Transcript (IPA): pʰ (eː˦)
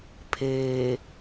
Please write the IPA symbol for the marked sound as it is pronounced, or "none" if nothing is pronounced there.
eː˨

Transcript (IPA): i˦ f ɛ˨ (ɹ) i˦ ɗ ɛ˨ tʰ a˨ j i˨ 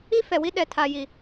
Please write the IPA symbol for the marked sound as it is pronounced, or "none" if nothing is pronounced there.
w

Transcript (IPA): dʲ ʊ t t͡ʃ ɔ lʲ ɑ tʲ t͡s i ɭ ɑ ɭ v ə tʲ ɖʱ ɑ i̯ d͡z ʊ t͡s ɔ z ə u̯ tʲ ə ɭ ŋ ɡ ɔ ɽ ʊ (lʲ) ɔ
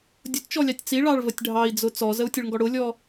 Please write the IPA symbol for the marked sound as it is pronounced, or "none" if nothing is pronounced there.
lʲ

